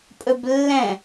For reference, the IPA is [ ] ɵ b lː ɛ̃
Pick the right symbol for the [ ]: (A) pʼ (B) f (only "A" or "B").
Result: A